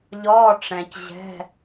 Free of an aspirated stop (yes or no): yes